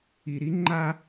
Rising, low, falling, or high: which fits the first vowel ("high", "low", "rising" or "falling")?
low